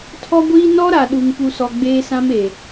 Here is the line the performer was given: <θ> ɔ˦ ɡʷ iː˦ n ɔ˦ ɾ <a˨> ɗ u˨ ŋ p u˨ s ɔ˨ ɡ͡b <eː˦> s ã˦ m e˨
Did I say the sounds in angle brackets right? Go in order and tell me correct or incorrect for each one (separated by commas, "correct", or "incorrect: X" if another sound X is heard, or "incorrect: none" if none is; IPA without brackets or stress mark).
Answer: incorrect: tʰ, correct, correct